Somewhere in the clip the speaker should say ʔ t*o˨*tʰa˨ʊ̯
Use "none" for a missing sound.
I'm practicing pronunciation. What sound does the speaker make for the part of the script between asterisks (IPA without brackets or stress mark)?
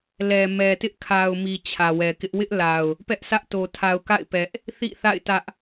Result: o˨